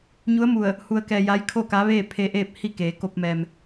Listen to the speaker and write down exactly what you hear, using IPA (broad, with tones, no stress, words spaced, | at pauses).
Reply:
ɲu˧˥ə̯mu˧˩ə̯ | hu˧ə̯kɛː˧ja˧˥j kʰo˥˨ka˧˥ʋeː˥˨ pʰe˧ʔeː˥˨p̚ hi˥˨keː˩˧ko˧p̚mɛː˩m